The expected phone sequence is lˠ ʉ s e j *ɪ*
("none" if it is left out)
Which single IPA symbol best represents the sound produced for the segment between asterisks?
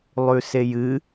ɨ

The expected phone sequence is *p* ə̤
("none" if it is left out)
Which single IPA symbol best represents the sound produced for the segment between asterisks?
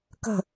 k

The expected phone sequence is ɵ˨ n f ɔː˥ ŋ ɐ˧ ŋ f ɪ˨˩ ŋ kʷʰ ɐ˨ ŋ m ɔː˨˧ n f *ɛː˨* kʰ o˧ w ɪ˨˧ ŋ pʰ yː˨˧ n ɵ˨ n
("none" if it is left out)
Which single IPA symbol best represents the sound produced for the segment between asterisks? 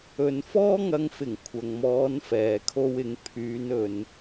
ɛː˨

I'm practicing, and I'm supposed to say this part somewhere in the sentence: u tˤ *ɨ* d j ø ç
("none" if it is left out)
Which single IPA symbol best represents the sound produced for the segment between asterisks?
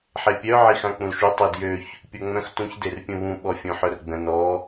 i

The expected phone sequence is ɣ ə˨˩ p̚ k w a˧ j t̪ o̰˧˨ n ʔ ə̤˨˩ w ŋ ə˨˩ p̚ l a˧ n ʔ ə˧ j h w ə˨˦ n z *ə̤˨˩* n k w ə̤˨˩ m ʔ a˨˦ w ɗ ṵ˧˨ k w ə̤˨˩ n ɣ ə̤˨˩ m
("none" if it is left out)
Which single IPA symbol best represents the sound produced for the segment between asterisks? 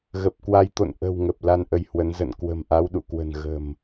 ə̰˧˨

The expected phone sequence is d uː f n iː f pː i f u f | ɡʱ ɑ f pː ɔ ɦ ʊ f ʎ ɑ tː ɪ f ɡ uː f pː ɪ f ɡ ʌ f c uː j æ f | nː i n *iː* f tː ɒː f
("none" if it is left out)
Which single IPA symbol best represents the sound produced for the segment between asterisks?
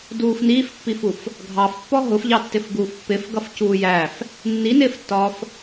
ɪː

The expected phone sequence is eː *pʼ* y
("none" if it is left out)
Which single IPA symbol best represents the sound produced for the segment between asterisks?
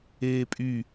pʼ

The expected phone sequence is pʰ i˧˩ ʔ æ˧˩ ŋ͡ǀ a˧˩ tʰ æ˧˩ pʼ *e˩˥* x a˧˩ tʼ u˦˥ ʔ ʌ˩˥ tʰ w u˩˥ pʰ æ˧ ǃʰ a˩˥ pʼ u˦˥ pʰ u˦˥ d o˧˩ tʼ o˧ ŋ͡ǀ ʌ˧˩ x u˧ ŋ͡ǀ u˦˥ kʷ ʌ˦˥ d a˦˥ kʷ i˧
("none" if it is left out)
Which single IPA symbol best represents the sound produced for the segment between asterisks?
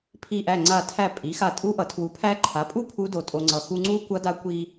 i˩˥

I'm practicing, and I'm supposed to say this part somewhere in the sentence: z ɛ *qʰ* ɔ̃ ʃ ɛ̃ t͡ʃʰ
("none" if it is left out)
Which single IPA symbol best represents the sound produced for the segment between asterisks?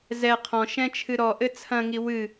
qʰ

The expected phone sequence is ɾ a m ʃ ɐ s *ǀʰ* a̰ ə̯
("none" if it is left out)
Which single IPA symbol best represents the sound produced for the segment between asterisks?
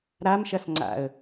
ŋ͡ǀ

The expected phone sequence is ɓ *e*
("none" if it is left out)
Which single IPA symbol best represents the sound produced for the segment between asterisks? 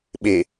e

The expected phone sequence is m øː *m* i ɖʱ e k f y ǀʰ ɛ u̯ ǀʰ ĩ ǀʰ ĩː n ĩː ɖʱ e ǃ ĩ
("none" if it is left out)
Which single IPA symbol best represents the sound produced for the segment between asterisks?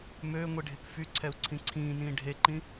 ŋʷ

